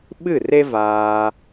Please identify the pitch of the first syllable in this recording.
falling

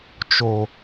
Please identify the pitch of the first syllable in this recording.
low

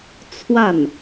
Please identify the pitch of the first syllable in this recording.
falling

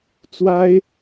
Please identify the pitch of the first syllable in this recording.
high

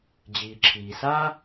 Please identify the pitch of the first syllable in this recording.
low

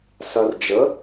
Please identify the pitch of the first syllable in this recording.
low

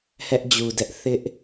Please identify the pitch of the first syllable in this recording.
high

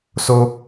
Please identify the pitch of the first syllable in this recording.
high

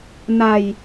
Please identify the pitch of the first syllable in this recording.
low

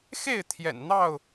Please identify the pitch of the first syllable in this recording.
falling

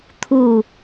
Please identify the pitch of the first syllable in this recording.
falling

